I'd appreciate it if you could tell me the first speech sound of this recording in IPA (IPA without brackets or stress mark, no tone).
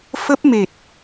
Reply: f